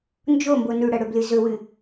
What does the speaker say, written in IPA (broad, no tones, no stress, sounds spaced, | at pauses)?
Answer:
n d͡ʒ o m b o n ʉ ɽ ɐ ɽ ɵ b l ɨ z ɵ w ɨ